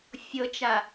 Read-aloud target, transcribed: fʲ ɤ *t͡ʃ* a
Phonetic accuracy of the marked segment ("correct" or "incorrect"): correct